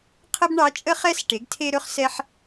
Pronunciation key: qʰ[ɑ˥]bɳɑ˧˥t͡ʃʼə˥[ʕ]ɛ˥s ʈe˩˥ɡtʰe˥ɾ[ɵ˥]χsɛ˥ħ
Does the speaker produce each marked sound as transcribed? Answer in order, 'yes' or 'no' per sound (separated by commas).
no, no, yes